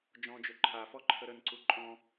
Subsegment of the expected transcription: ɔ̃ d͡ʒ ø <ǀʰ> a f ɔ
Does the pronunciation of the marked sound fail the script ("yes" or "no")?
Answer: yes